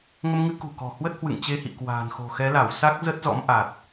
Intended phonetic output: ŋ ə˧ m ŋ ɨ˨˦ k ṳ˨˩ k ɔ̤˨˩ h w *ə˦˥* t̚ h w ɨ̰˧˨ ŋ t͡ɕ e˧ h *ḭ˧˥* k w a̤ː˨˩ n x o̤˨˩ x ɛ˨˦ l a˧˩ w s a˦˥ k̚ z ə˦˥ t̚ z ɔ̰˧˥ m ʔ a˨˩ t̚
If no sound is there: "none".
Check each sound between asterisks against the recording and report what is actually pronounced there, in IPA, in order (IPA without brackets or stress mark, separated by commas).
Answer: ə˦˥, ḭ˧˨